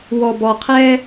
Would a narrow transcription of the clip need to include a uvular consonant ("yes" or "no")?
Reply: yes